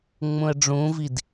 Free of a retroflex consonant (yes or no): no